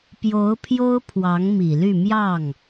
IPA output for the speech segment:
p j o˧˥ ʊ̯ pʰ j o˥ ʊ̯ pʰ w ɑ˧˥ ŋ m i˨˩ l y˥˧ m j ɑ˥˩ ŋ

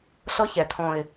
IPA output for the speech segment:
ɬ ɤ˦ ç ɛ˨ t̪ʰ ɔ̃˨ ɪ̯

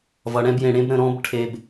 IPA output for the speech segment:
v ʌ˧ ɽ ɛ̃˥ b j ẽ˧ ɽ ẽ˥ b ɾ ə̃˧ ɾ ɔ̃˥ b ʈʰ e˧ b

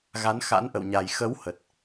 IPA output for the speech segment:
ɣ a˨˦ n x a̰˧˥ n ʔ ə̰˧˨ w ɲ a˨˩ j x ə˨˦ w h ə˨˩ t̚

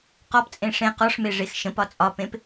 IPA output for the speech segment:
q ɔ p t͡sʼ ẽ ʂ ẽ q ɔ ʂ m e ʐ e x ʃ ə̃ p ɒ t͡sʼ ɒ p ẽ p

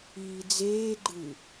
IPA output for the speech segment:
iː d͡z eː ɡ͡ǃ ɯ

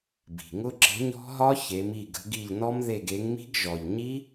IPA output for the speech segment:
b i̤˨˩ ŋ ʊ˦˥ ǁ ə̤˨˥ ɲ ɔ̤˦˥ ɦ ɒ˦˥ ç e˨˥ m i˦˨ ɡ ə̤˨˥ ɡ i˦˨ ʎ n ɔ˦˥ m ð e˦˨ ɡ e˨˥ ŋ m i̤˦˥ ɡ ʒ ɔ˨˩ ʎ ɲ i˦˥

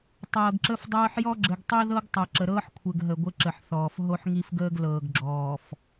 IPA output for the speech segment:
tˤ ɤː˨ ɡ ǁ ə˦ f dˤ ɤː˦ ħ j ɔ˦ ɡ͡ǁ ɘ˨ ɡ tˤ i˦ ð ɤ˦ ɡ tˤ ɤ˨ ǁ ə˨ ɾ ɤː˦ ħ kʷʰ ɘ˨ ɡ ɦ ə˨ ɡʷ ɘ˦ ǁ ə˨ ħ θ ɔː˨ f ɦ o˦ ħ ŋ i˦ f ɡ əː˦ ɡ l ɤː˨ ɡ ɡ͡ǁ ɔː˨ f

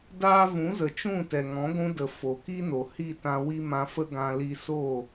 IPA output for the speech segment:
d aː˦ v ũ˨˦ z ə˨ t͡ʃ ũ˦˨ t ɛ˨ ŋ ɔ̃˨˦ ɡʷ ũ˧ d ə˨ f o˨ k i˦ n o˨ h i˦˨ t ã˧ w i˦ m ã˧ f ə˦ ɡ ã˧ l i˧ s o˦˨

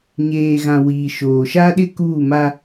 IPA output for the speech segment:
ɲ eː˨ ɣ ã˨ w iː˨ ʃ oː˨ ʃ a˦ ɗ ɪ˦ k uː˦˨ m a˦

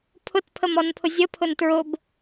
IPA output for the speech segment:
pʰ ʊ t pʰ ə m ɔ n pʰ ʊ zʲ ə pʰ ʊ n t ɹ ʊ b

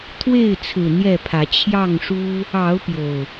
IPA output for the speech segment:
t̪ʰ w e˥˨ ɪ̯ t͡sʰ ɹ̩˨˩ n̪ j ɛ˥˨ pʰ ä˨˦ t͡ɕʰ j ɑ˥˨ ŋ ʂ u˦ | ɑ˨˦ ʊ̯ p j o˨˩ ʊ̯

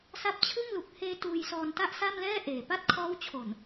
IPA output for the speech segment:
s a˦˥ p̚ t͡ɕʰ ɯ˥˩ ŋ l u˨˩ k̚ h eː˧ t uː˧ j s ɔː˧ n t a˥˩ ʔ s a˥˩ m l ɛː˥˩ ʔ eː˨˩ p a˥˩ t̚ kʰ ɔː˦˥ w t͡ɕʰ o˨˩ n

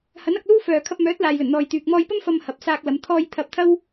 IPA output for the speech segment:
h ɐ˨˥ n ɐ˧ k̚ l uː˥ f œː˨ kʰ ɐ˧ p̚ m œː˨˥ t̚ l aː˨ j l ɵ˨˩ n n̪ ɔː˨ j t̪ yː˨ k̚ m ɔː˧ j p ɐ˥ m f ɐ˧ m h ɐ˨ p̚ s aː˧ k̚ l ɐ˨˧ m t̪ʰ ɔː˥ j t̪ʰ ɐ˧ p̚ t̪ʰ ɐ˥ w

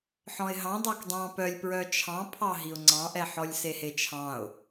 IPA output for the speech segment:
ħ ɔ̃ ɪ̯ ɦ ɑ̃ dˤ ɑ k dˤ ɑ̃ p œ lʲ p ɹ œ t͡ʃʰ ɑ̃ pʰ ɑ ɦ i ʊ̯ ŋ͡ǀ ɑ̃ ʔ ɛ ħ ɔ lʲ s e h e t͡ʃʰ ɑ̃ ʊ̯

